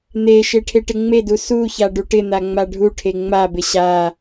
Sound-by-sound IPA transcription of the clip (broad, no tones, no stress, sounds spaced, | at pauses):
n̪ e ʃ e ʈʰ e ʈ ɪ ŋ͡m e d u s u ç a ɖ u ʈ ɪ n̪ a ŋ͡m a ɖʱ u ʈʰ e ŋ͡m a b ɪ ɕ a